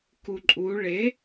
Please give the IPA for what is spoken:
k u ǃʼ u ɭ e

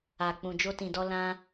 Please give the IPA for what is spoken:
a˨ k͡p ũ˨ d͡ʒ o˧ t ĩ˨ d ɔ˧ l ã˦

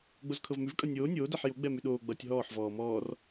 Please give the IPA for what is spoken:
ɡ͡b o z kʰ ɤ v m ʉ v kʼ ʌ nʲ oː nʲ oː d ɛ ħ j o ɡ͡b ɛ m ʉ ɗ oː ɡ͡b ʌː tʲ ɦ ɔː ħ v ɔː m ɔː r

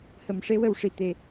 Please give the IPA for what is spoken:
h ə˨˩˨ m ʂ e˧ w ə˨˩ w ʂ i˨˩ t̪ e˨˩˦

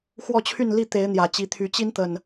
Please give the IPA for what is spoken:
x w ɔ˥˨ t͡ɕʰ y˥˨ n l i˥˨ t̪ e˨˦ ɪ̯ n̪ j ä˨˩ t͡ɕ i˨˦ t̪ʰ y˨˦ t͡ɕ i˦ n t̪ ə˨˩ n

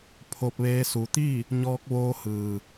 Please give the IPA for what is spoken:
pʰ o˧ p̚ ʋ eː˧˥ s u˩˧ t̪ i˥˨ | ɲ ɔː˧ k̚ ʋ oː˧ h ɯː˩

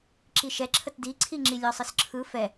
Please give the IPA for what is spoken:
ǁ i ʃ ɛ ǁʰ ə t d i ǀʰ i ŋ͡ǁ i lʲ ɒ sˤ ɯ s ǁʰ ɯ f ɛ

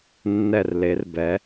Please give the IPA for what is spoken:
nː ɛ˧˩ r l e˩˧ r b ɛ˩˧

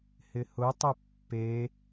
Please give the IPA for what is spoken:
h ɪ h ʊ tˤ ʊ pː e

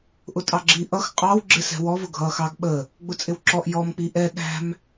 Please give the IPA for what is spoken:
ʔ ʊ tʼ ɑ ɡ͡ǁ i ʔ ʌ x qʼ ɑ w ɡ͡ǁ ɪ s ɛ̤ w ɔ v ʊ ɡʱ ʌ x ɑ ɡ ɓ ə | ɡ͡b ʊ t͡sʼ ɪ w ǁ ɔ ʔ j ɔ m k͡p i ʔ ɛ ɗ æ̤ m

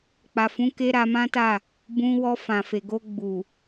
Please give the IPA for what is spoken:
k͡p a˨ f ũ˨˦ k e˧ ɾ a˧ m ã˦ t a˦˨ | b ũ˧ w ɔ˧ f ã˨ f e˨ ɡ o˧ ɡ͡b u˨

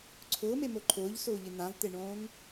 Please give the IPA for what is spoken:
ǀʰ ʊː m e m o ǃʰ ʊː ʎ s ʊː ʎ ɪ n̪ ã v t̪ e ɳ õː ŋ

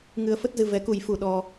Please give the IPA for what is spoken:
ŋ ɨ˧ ə̯ f ə˦˥ t̚ z ɨ˧ v ɛ˨˦ k u˨˩ j f u˨˩ ɗ ɔ˧

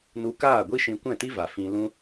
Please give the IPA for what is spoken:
n u˧ k aː˦˨ ɡʷ i˦ ʃ ĩ˧ kʷ ɛ̃˦˨ t i˦ v a˨ f ĩ˧ l ũ˦

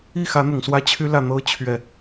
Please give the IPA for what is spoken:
i˥˩ x ä˧˥ n̪ ʊ˨˩ ŋ s w ä˥ t͡ɕʰ y˥ l ä˥˩ n̪ ɤ˥ t͡ɕʰ ɥ ɛ˥˩

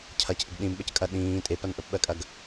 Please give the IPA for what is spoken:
cʰ ɐ c ʔ ɪ ɡ ɗ ĩ m ɓ ə c kʼ ɐ ɗ ĩː tʼ e p ɐ n ʔ ə p ɓ ɜ kʼ ɐ ɡ

